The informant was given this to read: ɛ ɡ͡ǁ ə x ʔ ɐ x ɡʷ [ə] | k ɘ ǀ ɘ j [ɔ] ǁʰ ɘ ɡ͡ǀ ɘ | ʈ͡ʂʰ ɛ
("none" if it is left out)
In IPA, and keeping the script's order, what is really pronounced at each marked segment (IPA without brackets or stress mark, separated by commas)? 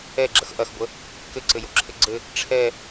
ə, o